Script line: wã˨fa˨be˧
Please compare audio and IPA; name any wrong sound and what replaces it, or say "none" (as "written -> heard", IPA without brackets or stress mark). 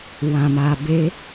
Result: f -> m